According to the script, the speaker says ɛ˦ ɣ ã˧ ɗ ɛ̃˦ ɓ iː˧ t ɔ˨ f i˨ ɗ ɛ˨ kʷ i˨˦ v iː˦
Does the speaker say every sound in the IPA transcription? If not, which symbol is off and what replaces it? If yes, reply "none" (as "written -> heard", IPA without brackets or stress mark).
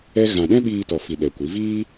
none